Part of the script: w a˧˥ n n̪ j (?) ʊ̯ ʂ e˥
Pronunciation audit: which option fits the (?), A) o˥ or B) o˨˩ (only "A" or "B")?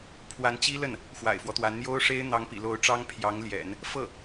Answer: A